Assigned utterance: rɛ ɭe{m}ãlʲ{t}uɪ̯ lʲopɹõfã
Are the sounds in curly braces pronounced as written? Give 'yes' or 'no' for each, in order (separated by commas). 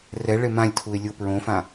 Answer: yes, no